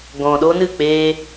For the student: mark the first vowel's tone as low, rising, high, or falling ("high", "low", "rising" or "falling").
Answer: low